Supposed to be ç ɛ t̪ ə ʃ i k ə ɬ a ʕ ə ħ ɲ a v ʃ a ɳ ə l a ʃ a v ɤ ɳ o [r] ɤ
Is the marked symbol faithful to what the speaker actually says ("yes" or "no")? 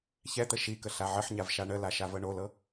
no